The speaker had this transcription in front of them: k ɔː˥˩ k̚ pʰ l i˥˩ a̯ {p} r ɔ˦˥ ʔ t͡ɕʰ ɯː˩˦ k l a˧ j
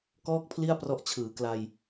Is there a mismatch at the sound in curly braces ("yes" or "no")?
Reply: no